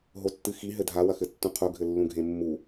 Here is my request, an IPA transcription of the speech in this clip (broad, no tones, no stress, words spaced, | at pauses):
ɦotːɨxi ɦɘdʱa wɐxɘtːũqʰu ɡʱɘlːũɡʱẽmːu